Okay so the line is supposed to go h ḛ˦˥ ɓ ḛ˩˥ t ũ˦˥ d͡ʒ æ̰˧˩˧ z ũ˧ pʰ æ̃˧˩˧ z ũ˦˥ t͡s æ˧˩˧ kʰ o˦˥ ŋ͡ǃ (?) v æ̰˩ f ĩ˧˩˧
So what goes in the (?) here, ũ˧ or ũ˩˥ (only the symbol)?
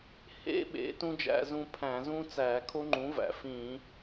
ũ˩˥